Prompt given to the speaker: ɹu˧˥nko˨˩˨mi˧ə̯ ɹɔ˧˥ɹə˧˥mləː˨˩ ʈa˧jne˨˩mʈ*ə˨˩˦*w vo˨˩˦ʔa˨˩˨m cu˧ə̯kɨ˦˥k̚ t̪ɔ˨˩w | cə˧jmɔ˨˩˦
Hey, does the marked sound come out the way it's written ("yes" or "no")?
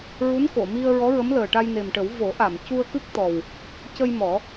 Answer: yes